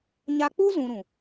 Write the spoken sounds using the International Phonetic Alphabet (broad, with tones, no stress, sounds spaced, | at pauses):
ɲ a˧ k͡p u˦ z ũ˧ ɾ ũ˨